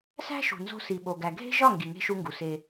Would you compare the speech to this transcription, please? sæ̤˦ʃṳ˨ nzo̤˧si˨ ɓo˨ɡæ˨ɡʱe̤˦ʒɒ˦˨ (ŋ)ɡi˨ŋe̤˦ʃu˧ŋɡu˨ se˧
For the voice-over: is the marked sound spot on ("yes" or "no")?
yes